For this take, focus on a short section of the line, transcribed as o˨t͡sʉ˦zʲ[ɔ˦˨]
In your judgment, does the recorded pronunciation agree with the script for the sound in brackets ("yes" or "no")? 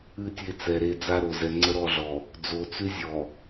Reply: no